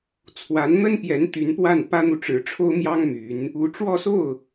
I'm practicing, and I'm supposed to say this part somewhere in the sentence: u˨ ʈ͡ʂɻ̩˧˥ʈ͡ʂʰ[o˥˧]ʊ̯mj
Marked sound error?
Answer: yes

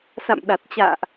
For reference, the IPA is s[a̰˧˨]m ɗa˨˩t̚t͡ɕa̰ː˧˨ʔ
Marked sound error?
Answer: no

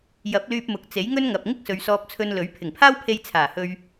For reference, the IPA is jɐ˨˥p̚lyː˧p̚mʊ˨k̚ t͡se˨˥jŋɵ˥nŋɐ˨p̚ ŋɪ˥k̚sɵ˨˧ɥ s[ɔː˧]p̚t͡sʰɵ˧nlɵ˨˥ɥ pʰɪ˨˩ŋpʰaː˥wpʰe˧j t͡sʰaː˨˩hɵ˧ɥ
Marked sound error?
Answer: no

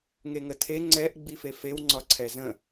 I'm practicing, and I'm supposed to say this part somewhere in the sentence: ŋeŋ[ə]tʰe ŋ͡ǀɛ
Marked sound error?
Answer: no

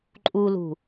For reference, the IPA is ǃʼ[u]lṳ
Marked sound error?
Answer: no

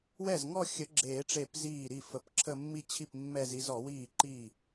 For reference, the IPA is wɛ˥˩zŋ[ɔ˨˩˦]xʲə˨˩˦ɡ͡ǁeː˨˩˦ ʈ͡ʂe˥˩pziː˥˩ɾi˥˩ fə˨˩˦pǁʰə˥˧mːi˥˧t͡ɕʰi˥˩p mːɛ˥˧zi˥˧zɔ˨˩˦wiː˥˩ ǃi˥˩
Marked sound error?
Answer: yes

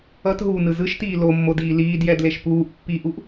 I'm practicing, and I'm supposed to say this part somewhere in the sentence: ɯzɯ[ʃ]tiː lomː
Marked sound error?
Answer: no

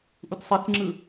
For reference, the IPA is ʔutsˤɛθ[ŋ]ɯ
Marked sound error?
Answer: yes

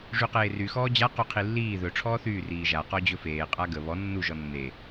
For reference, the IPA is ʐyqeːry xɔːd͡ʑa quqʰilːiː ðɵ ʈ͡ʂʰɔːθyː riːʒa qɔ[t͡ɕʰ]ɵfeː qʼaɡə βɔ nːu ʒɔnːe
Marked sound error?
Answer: yes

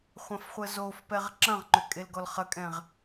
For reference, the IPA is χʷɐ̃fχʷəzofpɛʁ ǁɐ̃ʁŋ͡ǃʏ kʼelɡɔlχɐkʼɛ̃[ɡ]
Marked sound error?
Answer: yes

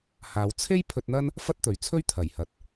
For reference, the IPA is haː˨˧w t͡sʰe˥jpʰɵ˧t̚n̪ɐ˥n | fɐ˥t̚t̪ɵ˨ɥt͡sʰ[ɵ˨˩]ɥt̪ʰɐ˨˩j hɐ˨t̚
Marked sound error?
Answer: yes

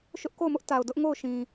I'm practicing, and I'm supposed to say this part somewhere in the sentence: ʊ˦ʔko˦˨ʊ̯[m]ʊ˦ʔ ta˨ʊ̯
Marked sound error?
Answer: no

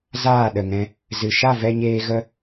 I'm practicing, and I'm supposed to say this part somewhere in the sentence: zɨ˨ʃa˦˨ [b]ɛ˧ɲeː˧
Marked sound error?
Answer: yes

